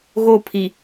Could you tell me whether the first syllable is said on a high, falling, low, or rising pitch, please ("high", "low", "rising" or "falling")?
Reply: falling